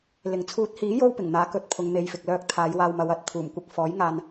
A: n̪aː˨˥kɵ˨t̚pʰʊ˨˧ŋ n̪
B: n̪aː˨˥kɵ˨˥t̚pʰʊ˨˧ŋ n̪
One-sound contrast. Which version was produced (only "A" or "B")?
B